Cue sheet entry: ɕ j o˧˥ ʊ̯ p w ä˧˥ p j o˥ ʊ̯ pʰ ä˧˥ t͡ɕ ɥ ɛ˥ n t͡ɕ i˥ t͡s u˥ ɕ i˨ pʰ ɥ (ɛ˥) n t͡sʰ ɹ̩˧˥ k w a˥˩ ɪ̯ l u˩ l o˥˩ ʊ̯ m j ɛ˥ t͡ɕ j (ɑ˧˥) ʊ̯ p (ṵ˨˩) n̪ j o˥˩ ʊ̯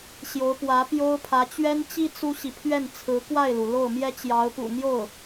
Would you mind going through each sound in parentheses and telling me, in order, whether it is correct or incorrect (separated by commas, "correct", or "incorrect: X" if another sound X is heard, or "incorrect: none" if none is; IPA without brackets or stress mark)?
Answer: incorrect: ɛ˥˩, correct, correct